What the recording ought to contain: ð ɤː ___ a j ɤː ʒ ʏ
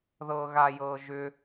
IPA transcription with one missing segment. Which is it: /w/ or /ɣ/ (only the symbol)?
ɣ